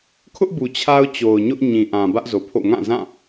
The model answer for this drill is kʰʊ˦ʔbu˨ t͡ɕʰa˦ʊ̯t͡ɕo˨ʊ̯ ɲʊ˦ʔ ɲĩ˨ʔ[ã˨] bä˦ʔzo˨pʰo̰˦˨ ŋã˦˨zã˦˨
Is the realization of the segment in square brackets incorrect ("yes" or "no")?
no